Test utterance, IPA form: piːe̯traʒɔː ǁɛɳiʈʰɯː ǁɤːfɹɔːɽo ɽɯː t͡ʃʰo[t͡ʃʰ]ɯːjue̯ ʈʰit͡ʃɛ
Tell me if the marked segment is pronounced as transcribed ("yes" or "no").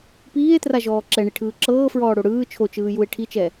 no